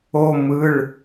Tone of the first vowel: high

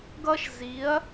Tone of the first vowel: high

